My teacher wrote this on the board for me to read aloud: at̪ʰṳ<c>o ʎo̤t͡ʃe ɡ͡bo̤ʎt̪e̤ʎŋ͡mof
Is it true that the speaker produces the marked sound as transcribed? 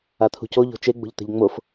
yes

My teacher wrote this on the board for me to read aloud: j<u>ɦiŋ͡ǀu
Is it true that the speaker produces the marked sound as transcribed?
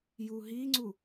yes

